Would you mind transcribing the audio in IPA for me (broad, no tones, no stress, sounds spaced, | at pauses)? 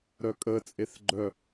ɾ œ kʼ ə t͡sʼ e θ ɡ͡ǃ œ